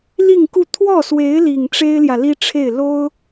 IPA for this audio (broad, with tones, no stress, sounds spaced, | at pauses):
l i˥˧ ŋ k u˥˧ t̪ʰ w ɔ˥˩ s w e˧˥ ɪ̯ l i˨˩ ŋ ʈ͡ʂ e˥ ɪ̯ l j ä˨ l i˥ ʈ͡ʂʰ e˥˩ ɪ̯ l o˥ ʊ̯